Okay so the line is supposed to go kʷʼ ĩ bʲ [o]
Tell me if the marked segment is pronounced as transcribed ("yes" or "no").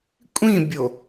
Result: yes